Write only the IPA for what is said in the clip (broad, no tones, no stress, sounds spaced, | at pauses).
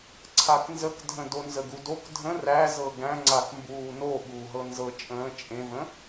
ǀʰ a k n z ə k dʱ ə̃ d o n z ə ɡ u d o k dʱ ə̃ r æ z ɤ ɡ æ̃ ŋ͡ǀ a k m b uː n o ɓ uː ɦ ɤ n z ɤ t͡ʃʼ ə̃ː t͡ʃʼ ẽ v ə̃